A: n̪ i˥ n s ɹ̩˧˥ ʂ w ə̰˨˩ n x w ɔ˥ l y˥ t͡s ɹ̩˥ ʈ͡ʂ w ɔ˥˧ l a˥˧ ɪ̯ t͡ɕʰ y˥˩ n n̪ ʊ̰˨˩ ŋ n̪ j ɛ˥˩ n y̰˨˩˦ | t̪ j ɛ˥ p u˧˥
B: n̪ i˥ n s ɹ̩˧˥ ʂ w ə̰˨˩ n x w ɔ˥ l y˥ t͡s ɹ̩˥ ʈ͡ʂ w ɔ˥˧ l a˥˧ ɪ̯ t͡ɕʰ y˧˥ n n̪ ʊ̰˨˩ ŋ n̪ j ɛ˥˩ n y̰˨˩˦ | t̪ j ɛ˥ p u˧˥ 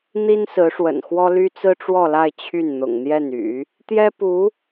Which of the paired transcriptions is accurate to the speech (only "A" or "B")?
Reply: A